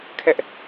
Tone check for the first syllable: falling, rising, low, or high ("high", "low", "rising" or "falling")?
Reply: high